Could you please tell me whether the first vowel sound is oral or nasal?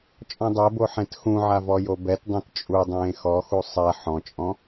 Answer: nasal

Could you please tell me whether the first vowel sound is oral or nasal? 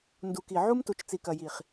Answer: oral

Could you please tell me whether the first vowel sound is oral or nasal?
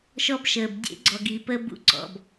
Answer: oral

